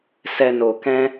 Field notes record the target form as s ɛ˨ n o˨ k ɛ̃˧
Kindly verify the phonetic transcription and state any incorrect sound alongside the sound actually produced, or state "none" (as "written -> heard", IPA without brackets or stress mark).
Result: none